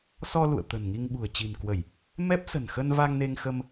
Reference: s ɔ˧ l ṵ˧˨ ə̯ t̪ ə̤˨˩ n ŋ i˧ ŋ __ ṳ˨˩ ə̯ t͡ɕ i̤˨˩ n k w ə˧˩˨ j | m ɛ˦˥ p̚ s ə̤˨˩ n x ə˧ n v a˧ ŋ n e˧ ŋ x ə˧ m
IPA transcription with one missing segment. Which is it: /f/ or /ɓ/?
ɓ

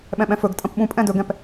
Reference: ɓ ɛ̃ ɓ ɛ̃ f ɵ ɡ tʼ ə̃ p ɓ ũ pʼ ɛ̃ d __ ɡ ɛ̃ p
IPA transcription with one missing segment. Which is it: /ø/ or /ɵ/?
ɵ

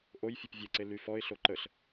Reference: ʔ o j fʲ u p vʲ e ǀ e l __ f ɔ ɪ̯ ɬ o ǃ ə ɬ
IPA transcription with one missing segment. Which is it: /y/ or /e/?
y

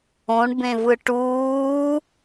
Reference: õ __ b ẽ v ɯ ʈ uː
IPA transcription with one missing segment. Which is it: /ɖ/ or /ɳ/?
ɳ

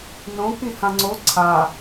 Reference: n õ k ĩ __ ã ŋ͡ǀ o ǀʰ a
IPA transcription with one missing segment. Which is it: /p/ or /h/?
h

